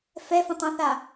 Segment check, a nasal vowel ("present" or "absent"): present